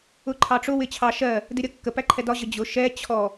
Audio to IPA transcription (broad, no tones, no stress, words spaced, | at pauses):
ʊǃʰɑʈ͡ʂʊ wɪt͡ɕʰɑ ʃɜ | dɪɾʲʌkːə pæǃʰɛdɒ ʑəd͡ʑʊ ʃɛ t͡ɕʰɔ